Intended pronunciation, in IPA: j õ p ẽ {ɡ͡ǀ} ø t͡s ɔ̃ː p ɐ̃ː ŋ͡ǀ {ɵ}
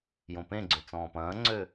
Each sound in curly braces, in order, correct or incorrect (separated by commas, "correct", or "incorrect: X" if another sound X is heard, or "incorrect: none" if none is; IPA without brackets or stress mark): correct, incorrect: ø